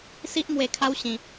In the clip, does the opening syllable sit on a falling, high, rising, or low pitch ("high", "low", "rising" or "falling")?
high